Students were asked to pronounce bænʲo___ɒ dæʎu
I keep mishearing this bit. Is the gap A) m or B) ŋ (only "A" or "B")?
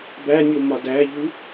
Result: A